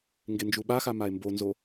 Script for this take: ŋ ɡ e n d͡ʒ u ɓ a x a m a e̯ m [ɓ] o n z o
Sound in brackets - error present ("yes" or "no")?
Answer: yes